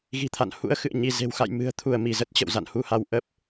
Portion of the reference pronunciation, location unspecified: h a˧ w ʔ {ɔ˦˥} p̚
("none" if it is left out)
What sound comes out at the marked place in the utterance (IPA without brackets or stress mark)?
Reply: ə˦˥